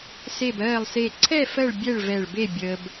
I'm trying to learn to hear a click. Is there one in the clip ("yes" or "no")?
yes